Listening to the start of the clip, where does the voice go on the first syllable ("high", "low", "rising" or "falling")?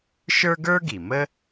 high